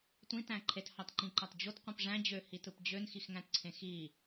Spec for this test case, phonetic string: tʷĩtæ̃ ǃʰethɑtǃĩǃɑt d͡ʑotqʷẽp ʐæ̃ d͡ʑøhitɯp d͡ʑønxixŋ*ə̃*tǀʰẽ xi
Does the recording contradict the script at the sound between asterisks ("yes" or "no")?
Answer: yes